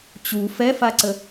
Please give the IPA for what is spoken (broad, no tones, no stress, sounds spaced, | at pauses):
t͡ɕ u f ɛ f a ǀ ə